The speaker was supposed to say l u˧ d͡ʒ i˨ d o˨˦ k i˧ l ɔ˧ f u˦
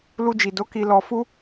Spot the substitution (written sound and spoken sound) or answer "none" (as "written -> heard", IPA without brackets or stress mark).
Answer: none